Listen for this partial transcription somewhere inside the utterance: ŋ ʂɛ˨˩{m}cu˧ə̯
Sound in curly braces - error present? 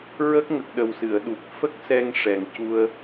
yes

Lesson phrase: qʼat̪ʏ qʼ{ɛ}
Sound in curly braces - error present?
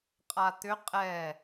no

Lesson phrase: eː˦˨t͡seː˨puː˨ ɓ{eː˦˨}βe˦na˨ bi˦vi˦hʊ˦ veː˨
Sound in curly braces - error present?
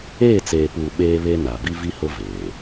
yes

